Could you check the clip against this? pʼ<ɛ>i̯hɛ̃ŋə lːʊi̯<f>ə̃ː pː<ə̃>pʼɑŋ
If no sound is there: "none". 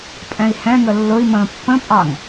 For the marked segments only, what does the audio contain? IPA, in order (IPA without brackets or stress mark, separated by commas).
ɛ̃, m, ə̃